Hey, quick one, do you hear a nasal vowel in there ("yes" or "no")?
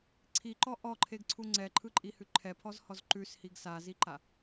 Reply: no